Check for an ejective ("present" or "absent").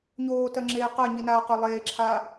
absent